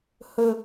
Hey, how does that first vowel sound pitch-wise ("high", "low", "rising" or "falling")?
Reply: low